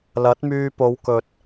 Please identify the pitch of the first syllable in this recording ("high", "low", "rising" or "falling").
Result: rising